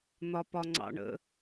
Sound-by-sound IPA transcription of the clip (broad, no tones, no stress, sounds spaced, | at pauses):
n̪ ɒ p ɒ ŋ͡ǀ ɑ̰ ɳ ə̰